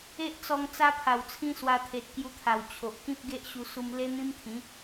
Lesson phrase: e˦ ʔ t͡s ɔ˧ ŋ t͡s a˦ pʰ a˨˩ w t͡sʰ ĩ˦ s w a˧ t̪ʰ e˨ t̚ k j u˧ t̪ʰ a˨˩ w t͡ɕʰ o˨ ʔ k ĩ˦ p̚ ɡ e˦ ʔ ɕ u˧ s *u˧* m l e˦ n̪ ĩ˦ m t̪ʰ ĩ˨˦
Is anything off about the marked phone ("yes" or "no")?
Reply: no